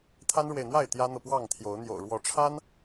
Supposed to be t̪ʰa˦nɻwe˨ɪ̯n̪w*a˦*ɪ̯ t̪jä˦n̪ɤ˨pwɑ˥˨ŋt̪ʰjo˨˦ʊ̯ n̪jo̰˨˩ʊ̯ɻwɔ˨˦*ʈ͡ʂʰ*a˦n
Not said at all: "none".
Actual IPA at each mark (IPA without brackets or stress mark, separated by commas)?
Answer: a˥˨, ʈ͡ʂʰ